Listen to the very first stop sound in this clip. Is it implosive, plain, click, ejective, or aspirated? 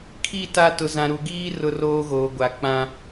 aspirated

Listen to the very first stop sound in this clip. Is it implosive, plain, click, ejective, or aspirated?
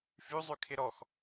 aspirated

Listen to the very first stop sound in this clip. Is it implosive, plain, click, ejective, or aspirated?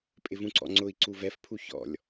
ejective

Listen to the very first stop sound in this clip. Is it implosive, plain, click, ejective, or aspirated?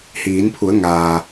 aspirated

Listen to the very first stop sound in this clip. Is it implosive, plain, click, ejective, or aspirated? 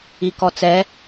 plain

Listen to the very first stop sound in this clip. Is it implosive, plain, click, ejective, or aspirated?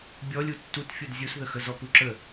plain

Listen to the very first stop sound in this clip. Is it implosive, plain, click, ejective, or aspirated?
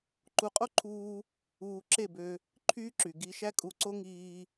click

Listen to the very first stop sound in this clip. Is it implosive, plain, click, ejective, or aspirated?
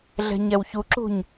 click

